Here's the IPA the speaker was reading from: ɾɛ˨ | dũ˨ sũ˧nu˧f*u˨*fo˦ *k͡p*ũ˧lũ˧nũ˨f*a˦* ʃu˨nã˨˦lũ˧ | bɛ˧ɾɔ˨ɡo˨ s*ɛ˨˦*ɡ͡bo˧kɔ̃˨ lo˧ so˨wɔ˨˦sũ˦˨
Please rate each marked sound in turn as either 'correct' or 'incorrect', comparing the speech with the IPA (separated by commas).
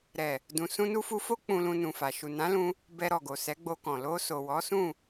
incorrect, correct, incorrect, correct